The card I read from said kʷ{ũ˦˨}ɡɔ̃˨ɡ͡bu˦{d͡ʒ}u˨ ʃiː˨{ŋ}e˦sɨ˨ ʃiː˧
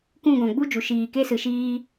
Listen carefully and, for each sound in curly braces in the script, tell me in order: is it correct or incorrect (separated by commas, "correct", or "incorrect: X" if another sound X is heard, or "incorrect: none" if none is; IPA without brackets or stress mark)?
correct, correct, incorrect: k